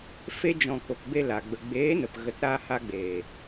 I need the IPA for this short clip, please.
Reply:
fe˧d͡ʒɔ̃˨ ko˨kbe˧ la˨ ɡ͡bə˨ ɡ͡beː˨˦nə˨p ɣə˨˦tɾaː˧ha˧ɡ͡beː˨

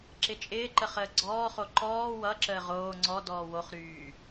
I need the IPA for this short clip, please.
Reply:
ǁɪt͡ʃʼɪːǃə χəːɡ͡ǀɔːχo ǃɔː wʌǁəː ʁoː ŋ͡ǀɔ dɔːwoχɾyː

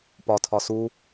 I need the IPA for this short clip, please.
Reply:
pɒtʰɒ su

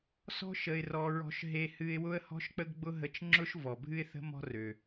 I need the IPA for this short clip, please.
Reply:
sɔ̤˥ ʃə˧ɪ̯rɔ˧ ɹɔ̤˧ʃɦe˧hɨ˧ɪ̯ wʊ˥ə̯hɔ̤˥ʃk͡pə˥ɡɡ͡bʊ˥ ɦə˧t͡ʃŋ͡ǁʊ˥ʃ vɔ˩bʱɨ˥ɪ̯θə̤˥ mɔ̤˥rø˩

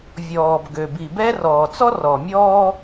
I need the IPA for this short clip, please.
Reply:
vʲɔː˨bɡø˨ bi˨bɛ˦ rɔː˨t͡sɔ˦rɔ˨mʲɔː˦

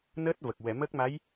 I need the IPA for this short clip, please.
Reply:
nəː˦˥t̚və˨˩k̚ wɛ˨˩˨mə˦˥k̚ma˧˥j

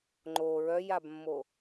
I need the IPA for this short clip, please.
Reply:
ŋ͡ǃo ɹœjabmːo

